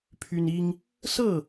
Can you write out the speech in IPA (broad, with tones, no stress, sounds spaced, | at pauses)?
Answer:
pʰ y˦ n i˦ ŋ | s ɤ˥˨